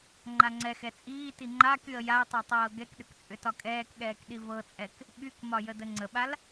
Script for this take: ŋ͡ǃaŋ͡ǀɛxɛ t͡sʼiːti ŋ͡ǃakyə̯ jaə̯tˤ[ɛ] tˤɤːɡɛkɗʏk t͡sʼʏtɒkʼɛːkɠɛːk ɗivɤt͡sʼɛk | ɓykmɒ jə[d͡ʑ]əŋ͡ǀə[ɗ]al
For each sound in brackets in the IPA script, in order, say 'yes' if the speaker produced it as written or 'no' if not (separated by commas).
yes, no, no